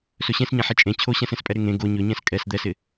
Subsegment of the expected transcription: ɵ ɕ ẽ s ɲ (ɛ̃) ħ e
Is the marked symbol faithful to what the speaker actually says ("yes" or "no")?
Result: yes